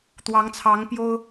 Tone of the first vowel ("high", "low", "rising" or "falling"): rising